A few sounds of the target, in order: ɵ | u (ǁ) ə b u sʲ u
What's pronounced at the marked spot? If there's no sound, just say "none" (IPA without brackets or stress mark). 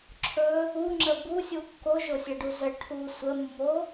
ŋ͡ǁ